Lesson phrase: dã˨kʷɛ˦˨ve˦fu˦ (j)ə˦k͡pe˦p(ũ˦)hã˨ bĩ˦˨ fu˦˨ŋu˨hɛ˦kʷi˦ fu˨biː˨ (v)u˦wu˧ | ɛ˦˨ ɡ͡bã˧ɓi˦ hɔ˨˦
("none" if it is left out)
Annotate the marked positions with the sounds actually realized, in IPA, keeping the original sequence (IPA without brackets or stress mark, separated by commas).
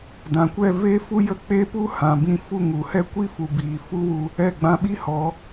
j, u˦, f